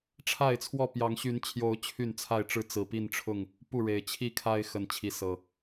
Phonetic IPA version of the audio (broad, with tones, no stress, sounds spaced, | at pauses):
ʈ͡ʂʰ a˥˨ ɪ̯ t͡sʰ w ɔ˥˨ p j ɑ˨˦ ŋ ɕ y˨˦ n t͡ɕʰ j o˨˦ ʊ̯ t͡ɕʰ y˥˨ n t͡sʰ a˥˨ ɪ̯ ʈ͡ʂ ɻ̩˥˨ t͡s ɹ̩˨˩ p i˥˨ n ʈ͡ʂʰ ʊ˥˨ ŋ | p u˥˨ ɻ e˨˩ ɪ̯ t͡ɕʰ i˥˨ kʰ a˦ ɪ̯ x ə˨˦ n t͡ɕʰ i˨˦ s ɤ˨˩